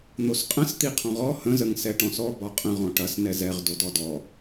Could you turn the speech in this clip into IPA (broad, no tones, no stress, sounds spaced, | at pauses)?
n̪ o s qʼ ə̃ s t̪ i qʰ ɔ̃ ʁ ɔ h ə̃ z ə ŋ s ɛ ʈ ɔ̃ s ɔ b ɒ qʼ ə̃ ʁ ɔ̃ ʈ ɐ s n ɛ z ɛ ʁ d o d ɔ d ɔ